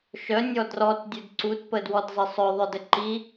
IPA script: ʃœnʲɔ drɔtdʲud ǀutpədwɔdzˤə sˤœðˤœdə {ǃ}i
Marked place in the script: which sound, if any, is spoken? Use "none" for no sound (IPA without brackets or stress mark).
ǃ